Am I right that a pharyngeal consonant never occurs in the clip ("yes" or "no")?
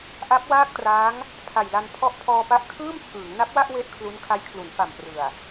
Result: yes